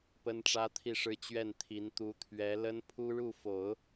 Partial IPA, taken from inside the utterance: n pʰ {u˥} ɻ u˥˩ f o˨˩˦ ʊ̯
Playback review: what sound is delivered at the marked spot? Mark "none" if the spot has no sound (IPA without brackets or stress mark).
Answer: u˥